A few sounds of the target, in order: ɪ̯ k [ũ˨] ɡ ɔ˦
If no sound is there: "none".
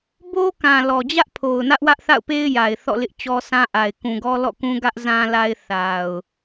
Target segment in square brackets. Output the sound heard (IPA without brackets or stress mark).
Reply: ũ˨